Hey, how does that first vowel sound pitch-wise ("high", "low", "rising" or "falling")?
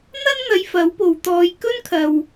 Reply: high